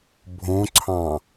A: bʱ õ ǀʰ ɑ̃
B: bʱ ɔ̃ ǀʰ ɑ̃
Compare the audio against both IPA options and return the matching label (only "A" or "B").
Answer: A